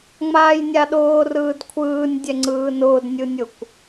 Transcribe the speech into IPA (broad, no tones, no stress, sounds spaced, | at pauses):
ŋ͡m aː j nʲ a ɗ ʊː r ɯː d kʷʰ ɯː nʲ dʲ ɛ ŋ͡ǀ ɯː n ʊː d nʲ ɯ nʲ ʊ kʷ